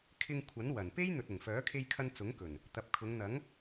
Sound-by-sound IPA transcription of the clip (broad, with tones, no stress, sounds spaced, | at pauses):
kʰ ɪ˧ ŋ kʷʰ ɐ˨˥ n w ɐ˨˩ n p e˥ j n̪ ɵ˨ t̚ ʊ˨˩ ŋ f œː˨˥ kʰ e˧ j kʰ ɐ˧ n t͡s ʊ˨˥ ŋ k ɵ˨˩ n | t̪ ɐ˨ p̚ kʰ ʊ˨˧ ŋ n̪ ɐ˨˥ ŋ